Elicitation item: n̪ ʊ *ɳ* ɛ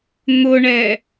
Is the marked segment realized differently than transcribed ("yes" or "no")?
no